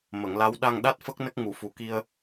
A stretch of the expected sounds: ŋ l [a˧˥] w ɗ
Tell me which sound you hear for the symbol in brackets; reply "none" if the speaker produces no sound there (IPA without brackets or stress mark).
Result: a˧˥